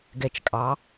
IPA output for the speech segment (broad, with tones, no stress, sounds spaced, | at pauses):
ɡ ɛ˨˩ t͡ʃ kʼ ɑ˩˧